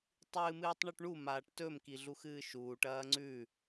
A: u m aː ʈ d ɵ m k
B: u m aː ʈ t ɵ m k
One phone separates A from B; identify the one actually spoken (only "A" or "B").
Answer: B